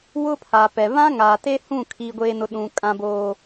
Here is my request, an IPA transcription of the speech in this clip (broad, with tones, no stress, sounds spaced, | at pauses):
w ʊ˦ pʰ a˨ p ɛ˨ β ã˦ ŋ aː˨ t e˦ h ũ˦˨ kʰ i˦ ɡʷ eː˦ n ʊ˦ ɗ ũ˦ kʼ ã˦ b oː˦